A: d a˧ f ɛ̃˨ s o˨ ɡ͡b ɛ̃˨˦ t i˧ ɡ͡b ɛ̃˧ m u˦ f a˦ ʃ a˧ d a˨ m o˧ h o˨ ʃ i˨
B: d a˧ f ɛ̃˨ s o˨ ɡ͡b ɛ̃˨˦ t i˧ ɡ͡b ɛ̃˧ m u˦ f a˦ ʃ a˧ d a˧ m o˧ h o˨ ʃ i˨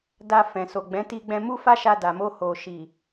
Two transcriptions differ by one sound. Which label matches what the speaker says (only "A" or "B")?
A